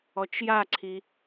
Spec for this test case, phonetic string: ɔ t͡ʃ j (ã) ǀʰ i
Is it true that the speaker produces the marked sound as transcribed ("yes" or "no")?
no